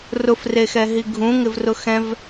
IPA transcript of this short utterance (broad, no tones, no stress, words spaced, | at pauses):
rʊfrexɛ ɦiɡʱũŋɪvrʊ xɛ̃v